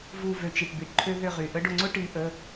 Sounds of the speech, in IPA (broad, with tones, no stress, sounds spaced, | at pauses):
v u˧˩ v ø˧˩ t͡ʃ i˩ ʈ b i˩ ʈ ǃʰ ø˦ ð ʏ˧˩ ʁ y˩ ʔ ə˦ ɖ ʊ˧˩ ŋ͡ǀ ʊ˦ ʈ i˨˦ ʔ ə˩˧˩